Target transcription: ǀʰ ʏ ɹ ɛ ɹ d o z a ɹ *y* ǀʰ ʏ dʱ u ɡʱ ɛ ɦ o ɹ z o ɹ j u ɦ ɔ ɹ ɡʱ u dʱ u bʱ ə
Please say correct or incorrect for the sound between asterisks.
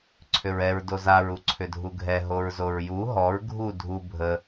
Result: incorrect: u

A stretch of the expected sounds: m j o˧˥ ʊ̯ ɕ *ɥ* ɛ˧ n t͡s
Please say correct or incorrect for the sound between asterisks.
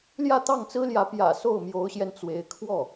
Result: incorrect: j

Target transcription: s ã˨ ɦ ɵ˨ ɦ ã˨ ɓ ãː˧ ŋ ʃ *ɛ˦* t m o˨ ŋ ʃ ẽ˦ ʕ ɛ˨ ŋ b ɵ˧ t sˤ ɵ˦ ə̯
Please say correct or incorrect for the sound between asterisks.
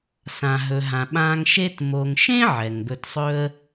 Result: incorrect: e˦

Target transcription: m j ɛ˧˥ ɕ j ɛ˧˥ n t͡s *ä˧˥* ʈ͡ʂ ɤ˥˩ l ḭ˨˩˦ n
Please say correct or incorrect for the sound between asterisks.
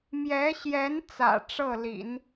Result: incorrect: ä̰˨˩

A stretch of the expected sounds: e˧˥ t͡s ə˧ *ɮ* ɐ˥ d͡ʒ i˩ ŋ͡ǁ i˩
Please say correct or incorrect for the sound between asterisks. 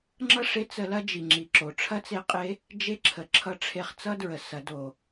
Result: incorrect: l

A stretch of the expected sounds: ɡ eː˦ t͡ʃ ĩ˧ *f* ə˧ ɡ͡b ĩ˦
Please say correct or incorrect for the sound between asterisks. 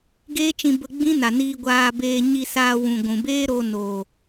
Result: incorrect: b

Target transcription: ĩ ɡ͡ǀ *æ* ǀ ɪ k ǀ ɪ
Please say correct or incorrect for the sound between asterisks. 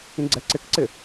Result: incorrect: ɛ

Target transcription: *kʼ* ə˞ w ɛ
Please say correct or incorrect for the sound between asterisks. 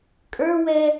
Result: correct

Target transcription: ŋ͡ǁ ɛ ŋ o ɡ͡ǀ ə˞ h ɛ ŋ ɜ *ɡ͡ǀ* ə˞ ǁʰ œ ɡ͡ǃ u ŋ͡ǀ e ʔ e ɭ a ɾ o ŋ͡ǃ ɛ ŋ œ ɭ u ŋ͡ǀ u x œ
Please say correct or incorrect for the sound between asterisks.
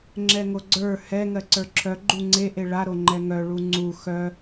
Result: incorrect: ǀ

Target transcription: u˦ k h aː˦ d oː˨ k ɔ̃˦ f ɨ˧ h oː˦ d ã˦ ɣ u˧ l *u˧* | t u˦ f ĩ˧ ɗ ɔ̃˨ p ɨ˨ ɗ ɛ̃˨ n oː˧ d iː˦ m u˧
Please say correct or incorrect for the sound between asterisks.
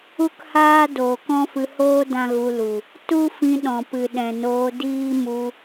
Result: incorrect: u˨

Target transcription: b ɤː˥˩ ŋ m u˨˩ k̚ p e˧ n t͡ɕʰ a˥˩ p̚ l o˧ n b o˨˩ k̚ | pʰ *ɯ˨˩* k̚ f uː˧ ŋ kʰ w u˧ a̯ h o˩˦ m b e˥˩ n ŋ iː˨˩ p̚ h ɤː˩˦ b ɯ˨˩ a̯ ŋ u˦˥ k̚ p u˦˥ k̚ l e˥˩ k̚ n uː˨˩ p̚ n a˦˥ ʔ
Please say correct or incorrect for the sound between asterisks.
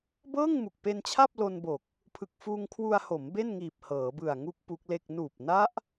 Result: correct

